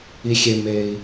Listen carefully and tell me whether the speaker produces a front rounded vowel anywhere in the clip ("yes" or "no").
no